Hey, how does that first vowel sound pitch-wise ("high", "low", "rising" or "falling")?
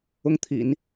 falling